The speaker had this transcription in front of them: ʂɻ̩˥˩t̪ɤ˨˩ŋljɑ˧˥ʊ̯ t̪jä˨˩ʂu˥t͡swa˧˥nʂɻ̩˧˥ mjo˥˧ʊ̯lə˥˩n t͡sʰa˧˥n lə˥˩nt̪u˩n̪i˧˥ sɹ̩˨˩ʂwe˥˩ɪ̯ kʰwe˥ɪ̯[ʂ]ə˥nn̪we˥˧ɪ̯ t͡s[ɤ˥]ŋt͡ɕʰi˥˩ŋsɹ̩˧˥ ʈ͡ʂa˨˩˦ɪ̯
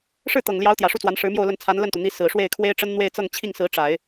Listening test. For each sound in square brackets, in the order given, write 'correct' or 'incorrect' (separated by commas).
incorrect, incorrect